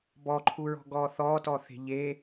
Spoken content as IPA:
b ɔ ǃʰ u ɹ ɔ̤ ɡ ɔː θ ɔ t ɔ θ e̤ ʎ e

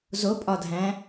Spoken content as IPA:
z o pʼ ɒ dʱ æ̃

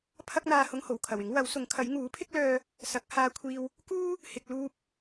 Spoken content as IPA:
pʰ ɐ˥ k̚ n̪ aː˧ h ʊ˧ ŋ h o˨˩ w kʰ ɐ˨˩ w ɪ˨˥ ŋ w ɐ˨˥ w s ʊ˨˥ ŋ kʰ ɐ˨˥ j ŋ uː˨˥ pʰ ɪ˥ k̚ l œː˧ | s ɐ˨˥ k̚ h aː˧ kʷʰ iː˧ w | k uː˥ | h ɪ˨ k̚ l uː˧ p̚

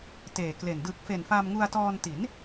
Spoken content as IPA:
t eː˨˩ k l e˨˩ n d ɯː˨˩ k̚ f e˨˩ n f a˧ m ŋ u˧ a̯ t ɔː˧ n t i˩˦ n

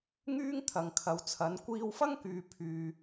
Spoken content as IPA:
ŋ yː˥ ŋ t̪ʰ ɐ˨ ŋ kʰ ɐ˨ w t͡sʰ ɐ˨˧ n kʷ iː˧ w f ɐ˥ ŋ k yː˨ pʰ yː˨

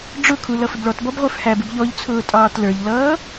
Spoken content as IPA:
ɖ͡ʐ ʊ kʰ u l ʌ f ɪ b ɭ ɔ t b ɔ b ʁʷ ə˞ f h æ b ɪ b ʎ ɔ ʎ t͡sʰ ʊː tʼ ɑː t l ə˞ ʎ l ʌː

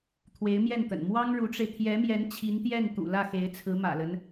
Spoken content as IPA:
t̪ʰ w e˧˥ ɪ̯ m j ɛ˥˩ n t̪ ə̰˨˩ n m w ɑ˥ ŋ ɻ u˧˥ ʈ͡ʂ e˧ ɪ̯ t̪ʰ j ɛ˧˥ m j ɛ˧˥ n t͡ɕʰ i˧˥ n t̪ j ɛ˥˩ n t̪ ṵ˨˩ l ä˥˩ x e˧˥ ɪ̯ t͡sʰ ɹ̩˧˥ m ä̰˨˩ l ə˦ n

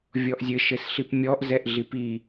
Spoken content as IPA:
vʲ ɔ ʔ zʲ ɘ ʃ ɘ s ɬ i p mʲ ɔ ʔ z ɛ ʔ ɮ i p i

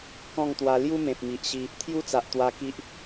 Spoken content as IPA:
k ɔ̃˥˧ ŋ t̪ w a˧ l j u˦ m ẽ˨ p̚ m i˨ ʔ ɕ i˧ | t̪ʰ j u˦ t͡s a˨ ʔ t̪ w a˧ k i˦ ʔ

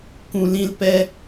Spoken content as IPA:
k ũ˨ l ĩ˧ l p ɛ˧

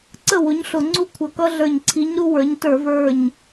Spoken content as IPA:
ǀ ə˥˩ w ʊ˨˥ ɲ ɬ ʊ˧˩˧ ŋ͡ǀ u˦ kʷʰ ʌ˧˩˧ k ʌ˦ ɮ ə˞˧˩ ɲ ǀʰ i˨˥ ɲ ɾ u˦ w ə˞˨˥ ɲ t ə˞˧˩˧ v ə˞˧˩ ɲ

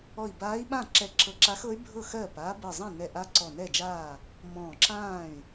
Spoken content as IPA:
ɔ˧˩ i̯ b aː˧˥ i̯ ɓ ã˥˩ ǁ ɛ˧˩ ǁ ɤ˧˩ ǁ a˧˥ x ɤ˧˥ y̯ bʱ ɤ˥˩ x ɜː˥˩ p aː˧˥ b ɜ˧˩ zˤ ã˥˩ n ɛ˧˩ ʔ a˧˥ ǀ ɔ˧˩ n ɛ˥˩ d͡ʒ aː˥˩ | m ɔ̃ː˧˩ ǁ ãː˥˩ y̯

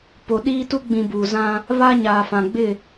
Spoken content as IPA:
p o˨ ɗ iː˦ t u˦ ɡ͡b ĩ˨ b uː˨ z ã˦ | β a˦ ɲ aː˨ f ã˨ ɡ͡b ɪ˦˨

